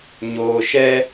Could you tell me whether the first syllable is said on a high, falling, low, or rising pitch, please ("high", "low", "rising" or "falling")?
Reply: low